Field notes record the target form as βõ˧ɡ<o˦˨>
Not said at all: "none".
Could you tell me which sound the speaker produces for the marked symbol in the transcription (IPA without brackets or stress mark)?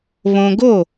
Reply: o˦˨